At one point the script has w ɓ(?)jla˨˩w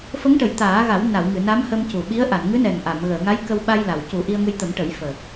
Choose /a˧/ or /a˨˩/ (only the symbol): a˧